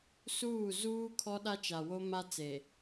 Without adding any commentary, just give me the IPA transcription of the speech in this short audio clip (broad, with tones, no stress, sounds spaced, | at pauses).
s uː˦˨ z uː˦ kʰ ɔ˦ ɗ a˦ t͡ʃ a˨ w o˦ m a˦ t͡s e˨